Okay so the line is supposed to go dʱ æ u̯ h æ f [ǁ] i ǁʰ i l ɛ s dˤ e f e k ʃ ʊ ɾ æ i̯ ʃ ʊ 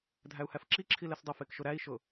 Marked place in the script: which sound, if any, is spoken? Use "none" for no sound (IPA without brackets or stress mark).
ǁ